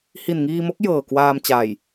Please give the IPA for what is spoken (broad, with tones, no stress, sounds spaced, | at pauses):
h i˨˩ n ŋ iː˧ m o˦˥ k̚ j ɤː˨˩ k w aː˧ m t͡ɕ aː˨˩ j